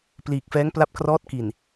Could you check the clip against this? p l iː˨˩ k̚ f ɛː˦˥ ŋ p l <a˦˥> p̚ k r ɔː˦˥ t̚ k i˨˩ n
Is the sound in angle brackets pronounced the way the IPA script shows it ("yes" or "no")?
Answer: yes